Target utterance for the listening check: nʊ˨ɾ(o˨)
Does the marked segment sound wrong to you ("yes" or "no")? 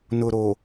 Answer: no